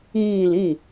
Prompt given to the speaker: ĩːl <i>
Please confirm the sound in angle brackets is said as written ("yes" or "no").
no